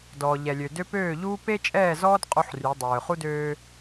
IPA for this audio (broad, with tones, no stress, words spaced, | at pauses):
dɔː˨ʎɛ˨lʲø˨dø˦ pøː˦˨ʎuː˦ pe˦t͡ʃʼɛː˦˨zɔː˦d qʼu˦ħry˨˦ dˤøː˨χu˦døː˦